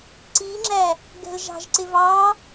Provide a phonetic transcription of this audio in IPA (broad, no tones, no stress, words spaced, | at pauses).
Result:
ǀiːŋ͡ǁæ | ɡɛ̤lʒɑ̤ʒǀɪ vɑ